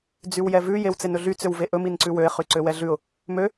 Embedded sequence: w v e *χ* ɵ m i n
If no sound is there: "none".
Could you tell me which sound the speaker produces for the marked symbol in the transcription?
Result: ʔ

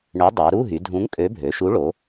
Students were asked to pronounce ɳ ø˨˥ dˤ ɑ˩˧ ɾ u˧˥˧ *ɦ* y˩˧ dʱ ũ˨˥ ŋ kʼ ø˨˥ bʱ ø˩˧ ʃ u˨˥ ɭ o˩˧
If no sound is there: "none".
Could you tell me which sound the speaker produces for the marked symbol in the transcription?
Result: ɦ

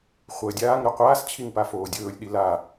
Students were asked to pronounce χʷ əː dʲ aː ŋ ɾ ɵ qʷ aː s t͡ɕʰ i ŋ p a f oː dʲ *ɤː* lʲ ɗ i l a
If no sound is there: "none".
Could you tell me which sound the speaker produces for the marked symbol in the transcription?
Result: ɵː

